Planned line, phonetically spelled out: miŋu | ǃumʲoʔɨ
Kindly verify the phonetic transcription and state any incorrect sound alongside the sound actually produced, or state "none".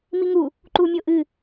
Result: none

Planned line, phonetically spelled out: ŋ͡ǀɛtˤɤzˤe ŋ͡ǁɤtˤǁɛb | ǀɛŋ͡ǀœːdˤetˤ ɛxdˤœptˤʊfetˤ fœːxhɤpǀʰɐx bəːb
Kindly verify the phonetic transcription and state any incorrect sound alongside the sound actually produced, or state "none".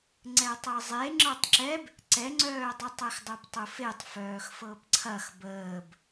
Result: h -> f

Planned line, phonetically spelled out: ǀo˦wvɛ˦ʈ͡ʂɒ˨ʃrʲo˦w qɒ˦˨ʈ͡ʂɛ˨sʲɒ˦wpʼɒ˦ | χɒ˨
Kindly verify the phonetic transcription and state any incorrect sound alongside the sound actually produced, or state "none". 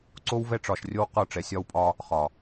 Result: none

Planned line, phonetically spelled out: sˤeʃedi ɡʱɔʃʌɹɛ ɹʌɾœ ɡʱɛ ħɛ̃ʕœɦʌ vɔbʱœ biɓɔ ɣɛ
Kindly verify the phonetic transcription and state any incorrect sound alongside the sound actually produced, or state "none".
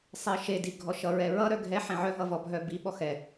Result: ɣ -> x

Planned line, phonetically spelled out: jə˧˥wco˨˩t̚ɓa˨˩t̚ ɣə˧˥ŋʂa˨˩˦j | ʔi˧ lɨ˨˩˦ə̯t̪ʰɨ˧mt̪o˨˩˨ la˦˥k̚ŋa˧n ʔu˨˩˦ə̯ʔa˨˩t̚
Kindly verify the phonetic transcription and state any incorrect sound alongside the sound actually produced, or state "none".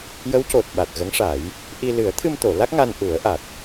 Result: none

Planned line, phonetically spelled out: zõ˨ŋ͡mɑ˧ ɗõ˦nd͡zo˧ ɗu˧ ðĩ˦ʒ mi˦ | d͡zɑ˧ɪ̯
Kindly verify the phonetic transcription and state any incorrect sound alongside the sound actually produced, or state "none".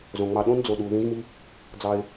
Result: o˧ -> o˨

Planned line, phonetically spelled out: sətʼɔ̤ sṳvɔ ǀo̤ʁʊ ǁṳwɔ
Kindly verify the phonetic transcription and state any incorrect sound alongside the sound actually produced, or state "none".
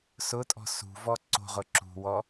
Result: ə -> ʊ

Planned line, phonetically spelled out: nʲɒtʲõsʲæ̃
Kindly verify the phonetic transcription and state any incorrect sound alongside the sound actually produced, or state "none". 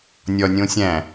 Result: tʲ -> nʲ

